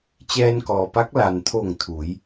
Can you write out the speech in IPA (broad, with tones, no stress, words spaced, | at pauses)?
t͡ɕɛː˧nkɔː˩pa˧˥k̚ la˩nt̪ʰo˧˩ŋ t̪ʰu˩˧j